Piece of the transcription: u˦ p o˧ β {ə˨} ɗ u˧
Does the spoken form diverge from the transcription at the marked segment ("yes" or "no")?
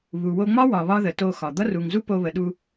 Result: no